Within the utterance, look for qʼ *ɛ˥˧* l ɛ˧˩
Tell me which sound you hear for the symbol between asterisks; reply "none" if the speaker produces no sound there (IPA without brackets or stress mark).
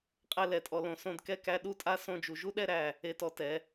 ɛ˥˧